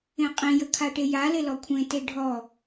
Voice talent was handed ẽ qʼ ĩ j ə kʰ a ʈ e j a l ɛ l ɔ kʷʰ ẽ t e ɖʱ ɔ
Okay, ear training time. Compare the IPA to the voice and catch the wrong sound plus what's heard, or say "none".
ɛ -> e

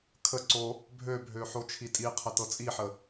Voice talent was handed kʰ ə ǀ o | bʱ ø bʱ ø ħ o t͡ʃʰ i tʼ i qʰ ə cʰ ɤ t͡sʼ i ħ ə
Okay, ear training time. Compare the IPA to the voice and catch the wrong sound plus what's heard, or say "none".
cʰ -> t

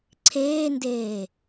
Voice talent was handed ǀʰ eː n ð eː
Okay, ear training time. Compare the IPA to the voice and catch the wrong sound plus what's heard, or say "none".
ð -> d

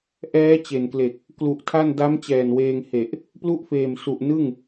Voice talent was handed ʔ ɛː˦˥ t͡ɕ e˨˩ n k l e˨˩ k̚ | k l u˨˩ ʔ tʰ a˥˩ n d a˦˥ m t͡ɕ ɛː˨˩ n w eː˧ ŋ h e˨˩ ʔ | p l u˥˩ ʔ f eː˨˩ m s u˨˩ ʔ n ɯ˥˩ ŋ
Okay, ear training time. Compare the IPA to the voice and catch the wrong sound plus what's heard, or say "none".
none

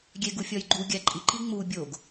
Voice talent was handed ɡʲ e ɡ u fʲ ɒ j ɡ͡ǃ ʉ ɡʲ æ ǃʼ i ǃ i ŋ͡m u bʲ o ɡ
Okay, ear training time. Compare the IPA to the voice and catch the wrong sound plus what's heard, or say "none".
ʉ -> u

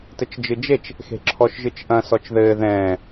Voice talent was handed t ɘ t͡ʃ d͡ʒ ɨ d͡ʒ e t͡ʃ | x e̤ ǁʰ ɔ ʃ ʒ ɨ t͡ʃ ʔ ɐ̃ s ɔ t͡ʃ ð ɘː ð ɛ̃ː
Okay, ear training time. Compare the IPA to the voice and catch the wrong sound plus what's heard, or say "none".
none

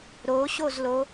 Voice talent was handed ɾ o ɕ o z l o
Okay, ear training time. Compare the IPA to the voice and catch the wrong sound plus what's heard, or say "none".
none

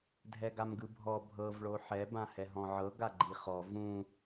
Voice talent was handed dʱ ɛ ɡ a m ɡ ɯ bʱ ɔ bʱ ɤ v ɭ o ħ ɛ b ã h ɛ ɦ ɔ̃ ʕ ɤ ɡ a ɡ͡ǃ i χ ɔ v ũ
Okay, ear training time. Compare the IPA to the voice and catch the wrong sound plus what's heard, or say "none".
none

